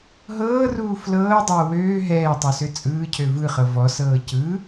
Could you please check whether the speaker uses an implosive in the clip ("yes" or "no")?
no